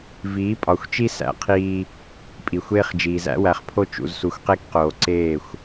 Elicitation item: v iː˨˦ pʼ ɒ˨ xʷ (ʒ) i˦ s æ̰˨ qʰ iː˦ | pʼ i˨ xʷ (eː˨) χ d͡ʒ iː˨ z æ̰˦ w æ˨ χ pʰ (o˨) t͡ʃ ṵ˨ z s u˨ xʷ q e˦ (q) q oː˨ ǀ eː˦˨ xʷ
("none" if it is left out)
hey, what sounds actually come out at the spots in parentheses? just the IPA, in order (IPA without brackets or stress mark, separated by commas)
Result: t͡ʃ, eː˦, o˦, k